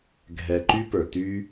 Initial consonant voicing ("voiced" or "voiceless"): voiced